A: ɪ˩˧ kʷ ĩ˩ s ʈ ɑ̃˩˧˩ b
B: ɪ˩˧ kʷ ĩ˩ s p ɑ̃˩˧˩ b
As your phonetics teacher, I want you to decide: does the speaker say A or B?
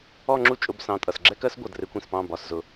B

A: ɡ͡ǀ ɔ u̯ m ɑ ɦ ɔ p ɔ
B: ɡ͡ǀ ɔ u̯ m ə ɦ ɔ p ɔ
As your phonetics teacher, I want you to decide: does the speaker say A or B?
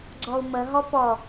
B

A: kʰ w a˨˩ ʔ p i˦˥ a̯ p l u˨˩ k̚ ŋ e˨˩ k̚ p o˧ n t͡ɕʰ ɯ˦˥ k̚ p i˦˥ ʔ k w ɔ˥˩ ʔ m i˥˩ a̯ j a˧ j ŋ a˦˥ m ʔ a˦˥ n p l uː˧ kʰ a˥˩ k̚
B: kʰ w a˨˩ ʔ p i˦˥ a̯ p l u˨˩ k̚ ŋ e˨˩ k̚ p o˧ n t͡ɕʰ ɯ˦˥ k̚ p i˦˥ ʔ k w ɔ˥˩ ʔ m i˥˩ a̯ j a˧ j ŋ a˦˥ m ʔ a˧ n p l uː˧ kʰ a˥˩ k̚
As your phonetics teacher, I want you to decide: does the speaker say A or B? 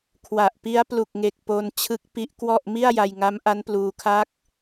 A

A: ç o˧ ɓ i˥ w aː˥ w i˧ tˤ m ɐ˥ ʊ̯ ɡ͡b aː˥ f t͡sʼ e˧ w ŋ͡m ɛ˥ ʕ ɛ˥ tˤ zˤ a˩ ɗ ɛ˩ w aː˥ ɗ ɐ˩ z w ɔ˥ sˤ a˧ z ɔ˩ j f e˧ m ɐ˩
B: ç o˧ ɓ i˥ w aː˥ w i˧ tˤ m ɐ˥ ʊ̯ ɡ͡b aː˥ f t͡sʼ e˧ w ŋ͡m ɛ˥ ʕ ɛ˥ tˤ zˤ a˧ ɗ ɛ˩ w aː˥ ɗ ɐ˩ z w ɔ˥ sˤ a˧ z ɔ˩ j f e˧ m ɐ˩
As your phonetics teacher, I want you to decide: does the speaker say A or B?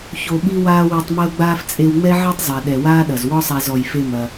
A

